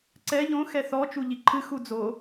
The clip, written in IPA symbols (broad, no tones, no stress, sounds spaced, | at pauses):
ǀ ɛ ʎ õ x ɛ θ ɔ t͡ʃ u ʎ i ǃʰ ɨ x u d͡z o